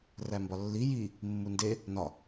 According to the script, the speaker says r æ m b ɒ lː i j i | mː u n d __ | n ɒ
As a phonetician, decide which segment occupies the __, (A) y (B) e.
B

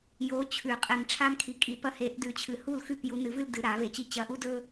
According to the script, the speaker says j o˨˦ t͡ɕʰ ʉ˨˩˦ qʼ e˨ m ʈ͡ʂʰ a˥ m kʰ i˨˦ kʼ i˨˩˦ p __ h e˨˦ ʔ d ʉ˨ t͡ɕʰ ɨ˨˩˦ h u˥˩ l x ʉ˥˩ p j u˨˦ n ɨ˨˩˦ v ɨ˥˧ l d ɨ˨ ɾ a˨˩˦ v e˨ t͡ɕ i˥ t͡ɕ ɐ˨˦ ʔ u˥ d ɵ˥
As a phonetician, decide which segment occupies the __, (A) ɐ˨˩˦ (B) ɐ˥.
B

